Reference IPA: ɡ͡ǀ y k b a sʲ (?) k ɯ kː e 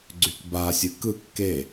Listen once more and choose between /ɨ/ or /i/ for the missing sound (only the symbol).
ɨ